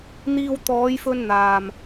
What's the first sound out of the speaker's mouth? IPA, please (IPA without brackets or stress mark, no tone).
n̪